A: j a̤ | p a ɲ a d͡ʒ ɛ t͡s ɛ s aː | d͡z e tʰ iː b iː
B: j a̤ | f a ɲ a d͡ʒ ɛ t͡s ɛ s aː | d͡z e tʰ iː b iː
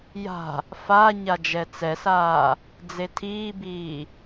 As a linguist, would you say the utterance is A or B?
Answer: B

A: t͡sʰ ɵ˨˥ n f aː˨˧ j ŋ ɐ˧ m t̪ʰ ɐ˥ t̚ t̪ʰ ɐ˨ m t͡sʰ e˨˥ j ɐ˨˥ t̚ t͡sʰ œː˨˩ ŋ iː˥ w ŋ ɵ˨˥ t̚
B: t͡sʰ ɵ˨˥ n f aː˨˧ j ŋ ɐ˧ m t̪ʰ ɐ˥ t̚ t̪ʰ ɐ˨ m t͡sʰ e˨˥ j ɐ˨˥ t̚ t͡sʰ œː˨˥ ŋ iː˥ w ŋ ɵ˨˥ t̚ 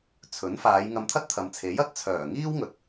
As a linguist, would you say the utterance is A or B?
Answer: A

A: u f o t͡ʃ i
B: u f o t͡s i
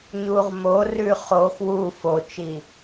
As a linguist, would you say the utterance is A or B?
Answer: A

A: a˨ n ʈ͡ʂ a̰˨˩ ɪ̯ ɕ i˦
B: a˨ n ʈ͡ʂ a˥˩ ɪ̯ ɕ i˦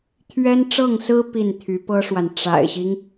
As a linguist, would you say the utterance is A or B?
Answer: A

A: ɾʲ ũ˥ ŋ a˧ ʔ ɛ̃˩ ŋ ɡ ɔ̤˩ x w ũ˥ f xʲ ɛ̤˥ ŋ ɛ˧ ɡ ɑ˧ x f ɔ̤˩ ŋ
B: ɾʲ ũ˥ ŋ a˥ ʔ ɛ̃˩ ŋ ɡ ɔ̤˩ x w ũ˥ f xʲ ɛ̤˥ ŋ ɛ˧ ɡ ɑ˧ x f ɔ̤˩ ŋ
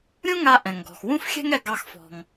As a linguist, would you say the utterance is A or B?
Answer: A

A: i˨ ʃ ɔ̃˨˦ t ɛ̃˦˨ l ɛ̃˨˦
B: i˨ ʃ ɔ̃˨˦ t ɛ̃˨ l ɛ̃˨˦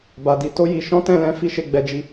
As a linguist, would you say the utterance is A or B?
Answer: A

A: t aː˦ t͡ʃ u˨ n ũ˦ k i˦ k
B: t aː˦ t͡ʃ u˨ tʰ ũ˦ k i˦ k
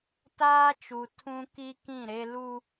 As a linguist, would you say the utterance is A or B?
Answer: B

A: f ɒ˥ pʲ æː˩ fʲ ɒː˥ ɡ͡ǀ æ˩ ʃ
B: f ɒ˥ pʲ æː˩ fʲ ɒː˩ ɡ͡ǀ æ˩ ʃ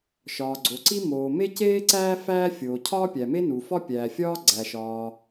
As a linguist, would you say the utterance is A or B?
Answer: A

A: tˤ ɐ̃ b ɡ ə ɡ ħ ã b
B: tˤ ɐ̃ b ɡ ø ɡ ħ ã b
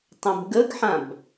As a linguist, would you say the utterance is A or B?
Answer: A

